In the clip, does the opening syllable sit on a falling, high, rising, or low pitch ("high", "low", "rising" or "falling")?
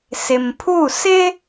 low